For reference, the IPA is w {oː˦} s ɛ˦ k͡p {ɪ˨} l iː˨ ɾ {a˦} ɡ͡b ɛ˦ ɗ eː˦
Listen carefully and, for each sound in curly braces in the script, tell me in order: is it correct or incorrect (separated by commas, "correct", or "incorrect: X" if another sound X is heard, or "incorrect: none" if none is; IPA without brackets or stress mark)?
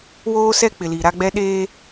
correct, correct, correct